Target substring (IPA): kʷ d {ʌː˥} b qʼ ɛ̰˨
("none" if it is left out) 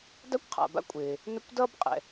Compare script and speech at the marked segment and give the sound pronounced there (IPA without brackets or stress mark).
ʌː˥